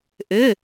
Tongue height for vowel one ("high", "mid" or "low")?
high